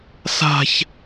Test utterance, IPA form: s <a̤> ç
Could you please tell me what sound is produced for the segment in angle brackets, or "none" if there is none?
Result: a̤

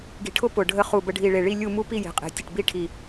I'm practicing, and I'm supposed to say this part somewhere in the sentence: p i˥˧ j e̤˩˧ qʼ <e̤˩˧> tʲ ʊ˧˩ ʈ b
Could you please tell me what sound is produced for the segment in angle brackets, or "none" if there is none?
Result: e̤˩˧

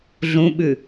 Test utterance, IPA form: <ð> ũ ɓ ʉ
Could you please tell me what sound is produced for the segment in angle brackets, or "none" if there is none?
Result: ɮ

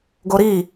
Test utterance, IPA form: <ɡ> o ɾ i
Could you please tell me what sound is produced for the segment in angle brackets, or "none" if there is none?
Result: ɡ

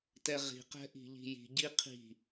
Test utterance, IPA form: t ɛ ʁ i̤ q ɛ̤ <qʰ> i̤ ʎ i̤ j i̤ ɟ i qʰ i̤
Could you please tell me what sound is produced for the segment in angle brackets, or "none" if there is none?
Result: ʔ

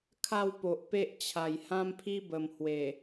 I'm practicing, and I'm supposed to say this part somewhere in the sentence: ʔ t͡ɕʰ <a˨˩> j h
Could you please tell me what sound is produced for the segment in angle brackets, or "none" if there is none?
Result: a˨˩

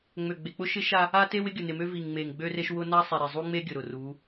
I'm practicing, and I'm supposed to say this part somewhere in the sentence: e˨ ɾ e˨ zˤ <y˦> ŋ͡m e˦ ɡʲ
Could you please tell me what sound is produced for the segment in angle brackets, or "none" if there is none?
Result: u˦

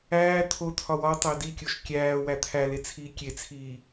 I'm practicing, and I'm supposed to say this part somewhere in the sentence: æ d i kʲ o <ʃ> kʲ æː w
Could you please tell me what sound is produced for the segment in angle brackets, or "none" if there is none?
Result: ʃ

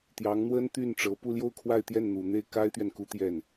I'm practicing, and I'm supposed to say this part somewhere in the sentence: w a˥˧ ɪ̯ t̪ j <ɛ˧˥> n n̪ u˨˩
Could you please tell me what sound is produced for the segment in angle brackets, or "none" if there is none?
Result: ɛ˥˩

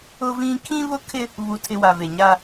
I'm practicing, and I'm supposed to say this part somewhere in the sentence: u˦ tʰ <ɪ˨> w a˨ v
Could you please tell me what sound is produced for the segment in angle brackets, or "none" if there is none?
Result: ɪ˦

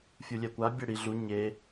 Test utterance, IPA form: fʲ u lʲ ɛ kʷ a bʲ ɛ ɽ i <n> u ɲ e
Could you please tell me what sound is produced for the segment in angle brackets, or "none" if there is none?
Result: ɮ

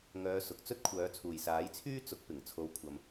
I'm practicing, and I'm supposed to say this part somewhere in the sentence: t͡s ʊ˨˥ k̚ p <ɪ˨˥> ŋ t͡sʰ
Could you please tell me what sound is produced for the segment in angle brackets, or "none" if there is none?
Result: ɪ˨˩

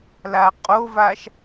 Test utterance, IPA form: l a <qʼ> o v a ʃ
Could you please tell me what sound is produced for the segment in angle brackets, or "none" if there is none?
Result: qʼ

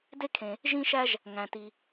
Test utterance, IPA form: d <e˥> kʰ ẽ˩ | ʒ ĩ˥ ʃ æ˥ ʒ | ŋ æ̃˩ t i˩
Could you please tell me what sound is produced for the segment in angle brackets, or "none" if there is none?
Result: e˥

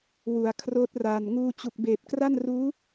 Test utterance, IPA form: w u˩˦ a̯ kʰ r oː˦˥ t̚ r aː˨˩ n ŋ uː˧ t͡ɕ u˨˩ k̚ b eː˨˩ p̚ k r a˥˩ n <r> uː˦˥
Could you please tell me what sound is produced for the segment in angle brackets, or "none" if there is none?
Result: r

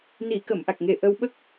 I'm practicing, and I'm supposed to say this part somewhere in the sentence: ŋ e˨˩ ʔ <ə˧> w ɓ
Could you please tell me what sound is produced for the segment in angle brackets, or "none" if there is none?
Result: ə˧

